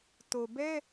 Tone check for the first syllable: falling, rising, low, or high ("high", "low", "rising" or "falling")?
low